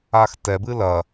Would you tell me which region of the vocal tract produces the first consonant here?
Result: velum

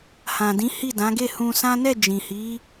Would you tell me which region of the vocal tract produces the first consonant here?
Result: throat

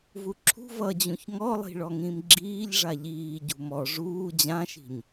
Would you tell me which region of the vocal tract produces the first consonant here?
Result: lips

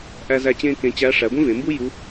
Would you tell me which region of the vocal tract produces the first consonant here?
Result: throat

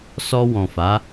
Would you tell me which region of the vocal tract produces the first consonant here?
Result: tongue tip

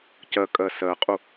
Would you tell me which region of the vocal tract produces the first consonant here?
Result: palate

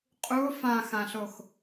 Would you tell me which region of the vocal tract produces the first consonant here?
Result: uvula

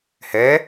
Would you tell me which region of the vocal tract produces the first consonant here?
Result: throat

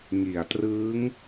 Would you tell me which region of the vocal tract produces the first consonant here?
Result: velum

